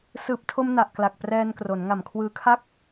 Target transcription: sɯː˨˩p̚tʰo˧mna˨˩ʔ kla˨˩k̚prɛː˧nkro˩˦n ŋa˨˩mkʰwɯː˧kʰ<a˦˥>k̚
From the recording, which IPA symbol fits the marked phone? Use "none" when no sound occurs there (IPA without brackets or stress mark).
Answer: a˥˩